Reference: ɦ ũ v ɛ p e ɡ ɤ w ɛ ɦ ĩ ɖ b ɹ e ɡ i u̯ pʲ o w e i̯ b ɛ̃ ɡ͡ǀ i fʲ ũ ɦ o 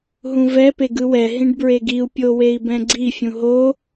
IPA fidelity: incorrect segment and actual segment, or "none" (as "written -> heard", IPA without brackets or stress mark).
ɤ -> ɯ